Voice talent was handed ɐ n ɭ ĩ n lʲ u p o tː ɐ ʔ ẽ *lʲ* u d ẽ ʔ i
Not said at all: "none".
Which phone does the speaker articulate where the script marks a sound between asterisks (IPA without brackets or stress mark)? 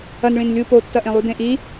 lˠ